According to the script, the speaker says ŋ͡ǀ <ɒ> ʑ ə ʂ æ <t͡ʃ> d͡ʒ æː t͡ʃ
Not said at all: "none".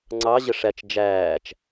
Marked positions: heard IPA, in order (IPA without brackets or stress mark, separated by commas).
ɑ, t͡ʃ